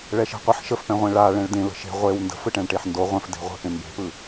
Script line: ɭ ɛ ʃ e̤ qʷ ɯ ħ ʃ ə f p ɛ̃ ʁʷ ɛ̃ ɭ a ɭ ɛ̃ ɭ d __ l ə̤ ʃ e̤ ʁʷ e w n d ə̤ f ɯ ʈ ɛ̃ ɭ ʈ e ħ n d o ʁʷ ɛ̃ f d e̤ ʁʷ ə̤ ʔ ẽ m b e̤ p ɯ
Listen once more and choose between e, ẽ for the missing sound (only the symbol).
ẽ